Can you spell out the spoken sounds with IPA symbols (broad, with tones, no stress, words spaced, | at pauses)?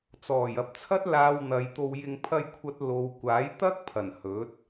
t͡sɔː˨˩jɐ˨p̚t͡sʰɐ˥t̚ laː˧wn̪ɐ˨˧jt̪o˧wjɪ˧ŋ pʰɐ˥jkʷʰɐ˥t̚lo˧w kʷaː˨˥jt̪ɐ˥k̚pʰɐ˨˩n hɵ˨˥t̚